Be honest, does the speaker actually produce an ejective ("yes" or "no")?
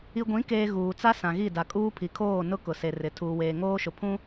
yes